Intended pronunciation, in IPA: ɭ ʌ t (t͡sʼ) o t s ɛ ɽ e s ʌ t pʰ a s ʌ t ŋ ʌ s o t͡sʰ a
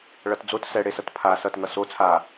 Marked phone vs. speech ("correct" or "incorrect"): incorrect